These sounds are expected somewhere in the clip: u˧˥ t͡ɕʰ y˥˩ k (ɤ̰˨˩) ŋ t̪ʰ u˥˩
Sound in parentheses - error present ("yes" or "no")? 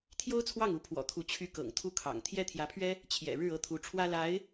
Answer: no